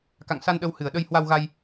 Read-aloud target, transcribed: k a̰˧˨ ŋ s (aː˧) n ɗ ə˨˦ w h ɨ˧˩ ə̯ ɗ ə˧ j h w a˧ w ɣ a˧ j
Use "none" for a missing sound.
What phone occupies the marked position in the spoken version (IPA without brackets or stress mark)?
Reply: a˧